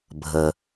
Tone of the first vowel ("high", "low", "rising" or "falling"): low